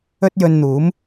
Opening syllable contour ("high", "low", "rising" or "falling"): high